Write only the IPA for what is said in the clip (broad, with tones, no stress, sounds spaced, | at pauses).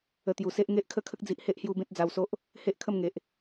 ə˧ t̪ j u˨˩ s e˦ ʔ ŋ e˦ ʔ kʰ ə˦ kʰ ə˦ k̚ d͡z i˨ ʔ h e˦ ʔ h j u˧ b ẽ˦ t̚ d͡z a˧ w s o˦ ʔ | h e˦ ʔ kʰ ə˥˧ m ŋ e˨ ʔ